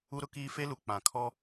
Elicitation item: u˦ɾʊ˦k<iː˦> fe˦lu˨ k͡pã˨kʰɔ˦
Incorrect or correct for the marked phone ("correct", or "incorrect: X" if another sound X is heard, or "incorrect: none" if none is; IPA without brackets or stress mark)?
correct